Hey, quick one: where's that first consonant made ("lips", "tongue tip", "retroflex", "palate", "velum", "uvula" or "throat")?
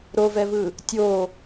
tongue tip